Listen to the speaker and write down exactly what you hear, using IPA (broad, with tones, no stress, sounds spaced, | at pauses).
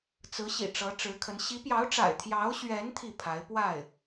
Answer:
t͡s ɹ̩˧˥ ɕ ḭ˨˩ ʈ͡ʂ ɤ˧˥ ʈ͡ʂ ɻ̩˧˥ kʰ ə˧˥ n ɕ i˧˥ p j ɑ˧˥ ʊ̯ ʈ͡ʂ a̰˨˩ ɪ̯ t̪ʰ j ɑ˧˥ ʊ̯ ɕ ɥ ɛ˧˥ n t̪ʰ i˥˩ pʰ a˧˥ ɪ̯ p w a˥˩ ɪ̯